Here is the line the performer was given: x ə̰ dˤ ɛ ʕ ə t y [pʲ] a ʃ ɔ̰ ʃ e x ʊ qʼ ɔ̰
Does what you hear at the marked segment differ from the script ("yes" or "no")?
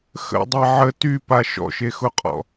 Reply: yes